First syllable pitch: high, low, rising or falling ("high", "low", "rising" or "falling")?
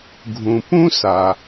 low